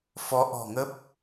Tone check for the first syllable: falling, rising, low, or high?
rising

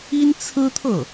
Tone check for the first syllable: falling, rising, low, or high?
high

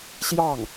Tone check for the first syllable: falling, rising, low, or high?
falling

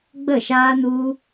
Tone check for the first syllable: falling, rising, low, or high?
falling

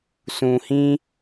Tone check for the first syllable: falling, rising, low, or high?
low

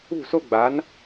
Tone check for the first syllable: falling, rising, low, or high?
falling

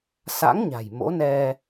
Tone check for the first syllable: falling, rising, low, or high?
rising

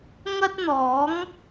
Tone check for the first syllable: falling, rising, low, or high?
high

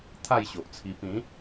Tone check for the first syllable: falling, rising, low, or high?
falling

